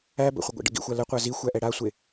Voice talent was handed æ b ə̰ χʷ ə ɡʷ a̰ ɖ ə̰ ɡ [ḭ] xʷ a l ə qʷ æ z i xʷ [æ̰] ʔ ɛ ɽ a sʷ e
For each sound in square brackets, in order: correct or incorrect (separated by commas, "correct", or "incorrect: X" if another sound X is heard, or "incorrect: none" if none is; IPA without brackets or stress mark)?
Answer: correct, incorrect: æ